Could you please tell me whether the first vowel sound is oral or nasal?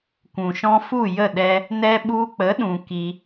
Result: nasal